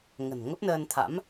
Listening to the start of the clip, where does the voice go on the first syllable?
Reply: low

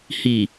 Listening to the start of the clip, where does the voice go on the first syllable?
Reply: low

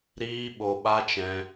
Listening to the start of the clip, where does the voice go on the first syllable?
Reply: high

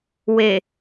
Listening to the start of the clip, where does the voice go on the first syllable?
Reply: low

